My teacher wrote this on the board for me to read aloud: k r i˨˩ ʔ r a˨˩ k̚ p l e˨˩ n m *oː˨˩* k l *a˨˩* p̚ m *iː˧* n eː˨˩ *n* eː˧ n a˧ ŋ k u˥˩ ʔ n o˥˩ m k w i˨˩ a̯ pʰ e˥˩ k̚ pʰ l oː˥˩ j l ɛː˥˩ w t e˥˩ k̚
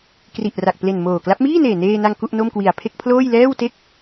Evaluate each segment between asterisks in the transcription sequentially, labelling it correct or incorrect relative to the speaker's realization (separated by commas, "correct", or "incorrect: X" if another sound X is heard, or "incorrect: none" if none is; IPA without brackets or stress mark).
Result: correct, incorrect: a˦˥, incorrect: iː˥˩, correct